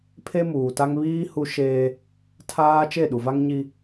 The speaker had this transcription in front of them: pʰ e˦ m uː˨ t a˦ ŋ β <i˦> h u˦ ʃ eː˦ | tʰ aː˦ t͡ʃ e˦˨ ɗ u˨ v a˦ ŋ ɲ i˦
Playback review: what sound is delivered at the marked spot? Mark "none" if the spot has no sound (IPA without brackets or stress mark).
iː˦